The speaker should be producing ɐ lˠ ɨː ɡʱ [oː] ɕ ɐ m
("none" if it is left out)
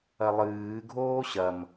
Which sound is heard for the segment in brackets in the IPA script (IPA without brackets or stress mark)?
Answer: oː